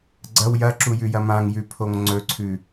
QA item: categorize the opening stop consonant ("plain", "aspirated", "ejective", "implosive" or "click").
click